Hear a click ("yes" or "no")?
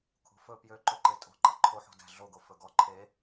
yes